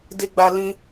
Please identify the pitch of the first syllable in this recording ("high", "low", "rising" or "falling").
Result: high